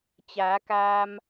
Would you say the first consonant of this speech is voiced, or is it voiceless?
voiceless